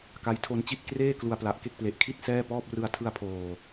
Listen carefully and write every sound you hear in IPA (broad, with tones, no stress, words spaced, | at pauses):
ka˦˥jtʰo˧nt͡ɕi˥˩t̚ kreː˥˩ klu˧a̯pla˨˩ʔke˥˩k̚ple˨˩ʔ kʰi˥˩t̚ sɛː˥˩pɔː˥˩p̚ rɯ˧a̯tʰɯ˧a̯pʰoː˨˩